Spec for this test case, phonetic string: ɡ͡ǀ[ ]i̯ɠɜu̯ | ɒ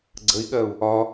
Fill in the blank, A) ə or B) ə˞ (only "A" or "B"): A